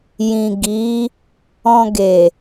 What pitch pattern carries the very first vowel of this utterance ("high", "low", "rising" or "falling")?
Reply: low